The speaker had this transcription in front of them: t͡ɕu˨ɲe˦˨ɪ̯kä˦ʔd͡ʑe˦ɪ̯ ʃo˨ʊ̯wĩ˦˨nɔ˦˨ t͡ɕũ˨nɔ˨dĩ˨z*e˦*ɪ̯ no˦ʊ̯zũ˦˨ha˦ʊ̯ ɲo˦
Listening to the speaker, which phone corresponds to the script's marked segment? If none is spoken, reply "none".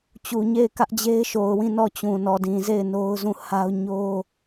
e˦˨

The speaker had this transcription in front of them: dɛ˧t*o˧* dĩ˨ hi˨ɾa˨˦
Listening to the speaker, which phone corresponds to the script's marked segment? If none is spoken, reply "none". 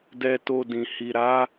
o˧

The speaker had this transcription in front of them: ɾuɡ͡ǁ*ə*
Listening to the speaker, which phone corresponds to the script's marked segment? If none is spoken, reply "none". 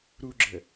ə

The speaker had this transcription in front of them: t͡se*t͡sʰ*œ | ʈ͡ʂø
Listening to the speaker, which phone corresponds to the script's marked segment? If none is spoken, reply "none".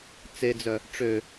d͡z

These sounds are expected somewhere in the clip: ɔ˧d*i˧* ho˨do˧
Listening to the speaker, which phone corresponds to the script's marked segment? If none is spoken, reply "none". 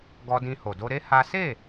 ĩ˧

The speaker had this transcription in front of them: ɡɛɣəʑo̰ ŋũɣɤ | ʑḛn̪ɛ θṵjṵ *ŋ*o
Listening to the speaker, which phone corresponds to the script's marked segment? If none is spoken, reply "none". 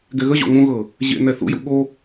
ɠ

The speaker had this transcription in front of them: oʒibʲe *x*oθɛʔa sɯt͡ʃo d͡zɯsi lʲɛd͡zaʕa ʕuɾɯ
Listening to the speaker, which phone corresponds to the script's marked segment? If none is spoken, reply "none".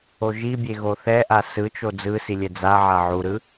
ɣ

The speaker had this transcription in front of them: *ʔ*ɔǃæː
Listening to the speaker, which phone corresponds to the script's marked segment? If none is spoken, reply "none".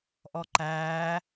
ʔ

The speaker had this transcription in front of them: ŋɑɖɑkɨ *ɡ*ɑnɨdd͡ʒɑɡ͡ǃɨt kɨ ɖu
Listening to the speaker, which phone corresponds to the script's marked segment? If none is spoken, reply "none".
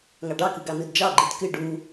ɡ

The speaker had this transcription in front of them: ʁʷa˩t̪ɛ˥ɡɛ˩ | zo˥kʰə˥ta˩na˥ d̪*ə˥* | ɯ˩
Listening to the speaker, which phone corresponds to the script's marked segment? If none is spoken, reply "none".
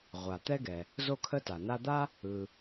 a˥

